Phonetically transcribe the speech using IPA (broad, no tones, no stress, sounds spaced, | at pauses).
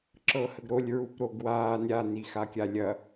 ǁ ɤ h ə ɡ ɾ o lʲ ɹ u p ɾ o ɡ w aː n ɾʲ a n i x a kʲ a lʲ ɐ